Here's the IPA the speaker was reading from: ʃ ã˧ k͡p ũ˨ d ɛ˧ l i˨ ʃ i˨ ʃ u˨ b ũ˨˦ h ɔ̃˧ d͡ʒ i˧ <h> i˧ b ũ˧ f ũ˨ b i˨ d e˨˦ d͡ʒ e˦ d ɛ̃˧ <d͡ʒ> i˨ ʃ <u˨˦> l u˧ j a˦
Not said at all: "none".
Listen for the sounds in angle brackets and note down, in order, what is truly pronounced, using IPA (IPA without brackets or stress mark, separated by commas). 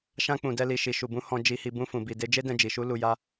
h, d͡ʒ, u˨˦